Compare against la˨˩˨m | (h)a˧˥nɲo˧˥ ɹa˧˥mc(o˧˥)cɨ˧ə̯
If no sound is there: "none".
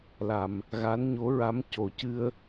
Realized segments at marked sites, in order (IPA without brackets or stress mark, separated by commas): ɣ, o˨˩˦